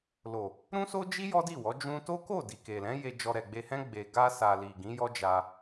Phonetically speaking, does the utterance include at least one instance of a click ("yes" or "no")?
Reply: no